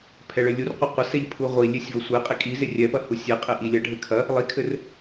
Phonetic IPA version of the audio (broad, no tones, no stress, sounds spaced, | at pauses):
pʰ ɛ ɭ ɘ lʲ u r qʷ ɐ qʷ ɐ s ɛ ʎ pʰ u ʁʷ i lʲ e sʲ v ɐ sʷ e qʼ i kʼ i z e rʲ ɛ p ɐ h u sʲ e qʼ e ʔ i lʲ ɐ ɖʱ ɘ kʰ ɐ | lˠ i kʰ ɘ r